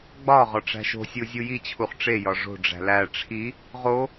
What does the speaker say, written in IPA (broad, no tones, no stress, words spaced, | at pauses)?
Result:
ɡ͡bɒ ʁɒʈ͡ʂæ̤ʃo̤sʲu zʲujit͡ɕʰuχ ʈ͡ʂejɒ ʐo̤ɖ͡ʐæ̤ læ ʈ͡ʂʰi | ʁo